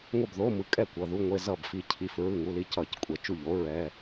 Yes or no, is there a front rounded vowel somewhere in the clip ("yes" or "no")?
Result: no